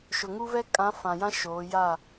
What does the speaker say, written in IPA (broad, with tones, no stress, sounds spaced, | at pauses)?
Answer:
ʃ ʊ˨ ŋ u˦ v ɛ˦ kʼ ã˨˦ f ã˨ j ã˦ ʃ oː˨˦ j a˦˨